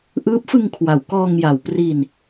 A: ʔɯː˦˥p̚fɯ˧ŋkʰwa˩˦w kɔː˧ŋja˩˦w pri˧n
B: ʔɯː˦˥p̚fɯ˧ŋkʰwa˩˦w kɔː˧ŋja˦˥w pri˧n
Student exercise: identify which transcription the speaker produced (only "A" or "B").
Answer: A